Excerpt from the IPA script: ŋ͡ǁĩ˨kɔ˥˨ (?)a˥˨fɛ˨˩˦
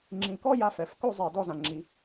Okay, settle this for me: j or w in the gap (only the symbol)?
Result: j